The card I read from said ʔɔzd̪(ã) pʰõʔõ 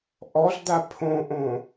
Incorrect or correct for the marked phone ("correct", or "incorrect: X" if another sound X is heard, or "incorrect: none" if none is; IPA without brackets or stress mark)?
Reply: incorrect: a